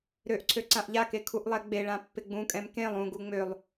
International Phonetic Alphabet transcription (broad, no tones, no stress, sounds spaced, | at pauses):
ɾ ø ʔ ǀʰ ø ǀ ã ʔ ʎ a k e kʰ u ʔ lˠ ɛ ɡ͡b e ɭ ã pː ɪ ɡ͡b ũ kʼ ɛ̃ m k ẽ lˠ ũ ɡ u ŋ͡m ø lˠ